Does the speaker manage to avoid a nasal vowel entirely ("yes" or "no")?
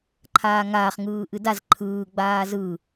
yes